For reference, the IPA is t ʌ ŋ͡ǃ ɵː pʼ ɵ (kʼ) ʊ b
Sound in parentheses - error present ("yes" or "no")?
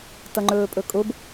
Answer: no